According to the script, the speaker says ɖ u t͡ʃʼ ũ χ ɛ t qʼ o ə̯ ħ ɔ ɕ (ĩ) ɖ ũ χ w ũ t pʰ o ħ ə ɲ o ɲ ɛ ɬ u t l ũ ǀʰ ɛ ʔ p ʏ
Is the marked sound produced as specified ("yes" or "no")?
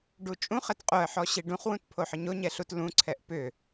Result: no